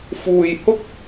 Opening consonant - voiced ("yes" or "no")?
no